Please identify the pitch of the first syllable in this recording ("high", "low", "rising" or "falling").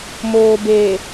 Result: low